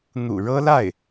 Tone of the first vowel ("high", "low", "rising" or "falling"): low